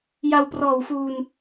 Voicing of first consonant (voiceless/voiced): voiced